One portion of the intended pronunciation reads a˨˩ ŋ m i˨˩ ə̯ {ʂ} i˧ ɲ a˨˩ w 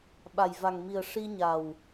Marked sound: correct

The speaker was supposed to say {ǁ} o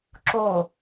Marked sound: correct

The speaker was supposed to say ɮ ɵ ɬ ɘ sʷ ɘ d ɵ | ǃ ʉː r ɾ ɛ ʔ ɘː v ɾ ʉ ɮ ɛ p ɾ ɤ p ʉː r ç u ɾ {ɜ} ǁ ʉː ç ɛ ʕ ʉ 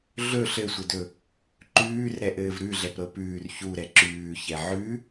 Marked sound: incorrect: ɛ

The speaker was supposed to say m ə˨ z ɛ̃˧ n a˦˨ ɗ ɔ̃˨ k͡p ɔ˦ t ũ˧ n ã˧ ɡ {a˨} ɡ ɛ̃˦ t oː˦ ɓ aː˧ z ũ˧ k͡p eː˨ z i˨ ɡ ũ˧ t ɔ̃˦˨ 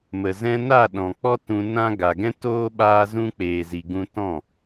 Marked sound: correct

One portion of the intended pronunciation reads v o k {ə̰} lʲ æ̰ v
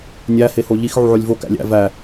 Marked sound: incorrect: æ̰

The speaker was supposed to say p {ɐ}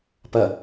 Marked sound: correct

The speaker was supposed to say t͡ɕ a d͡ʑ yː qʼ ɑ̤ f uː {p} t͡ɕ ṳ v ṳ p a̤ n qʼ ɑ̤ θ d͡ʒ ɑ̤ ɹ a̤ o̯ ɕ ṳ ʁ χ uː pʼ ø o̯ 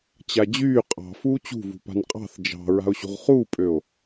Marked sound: incorrect: none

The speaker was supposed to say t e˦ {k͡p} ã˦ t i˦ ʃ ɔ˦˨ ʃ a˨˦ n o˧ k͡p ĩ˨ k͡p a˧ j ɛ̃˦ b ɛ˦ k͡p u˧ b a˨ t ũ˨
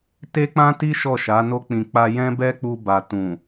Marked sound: correct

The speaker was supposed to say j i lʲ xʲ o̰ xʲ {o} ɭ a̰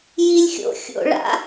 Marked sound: incorrect: o̰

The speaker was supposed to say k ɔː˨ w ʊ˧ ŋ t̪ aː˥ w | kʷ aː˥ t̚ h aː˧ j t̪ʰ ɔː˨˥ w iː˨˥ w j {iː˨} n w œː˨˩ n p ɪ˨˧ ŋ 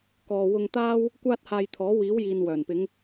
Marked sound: correct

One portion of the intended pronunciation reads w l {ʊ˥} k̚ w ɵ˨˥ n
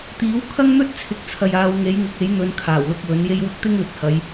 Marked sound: incorrect: ʊ˧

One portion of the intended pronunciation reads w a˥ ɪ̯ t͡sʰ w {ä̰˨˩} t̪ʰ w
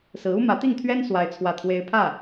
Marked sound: incorrect: ä˥˩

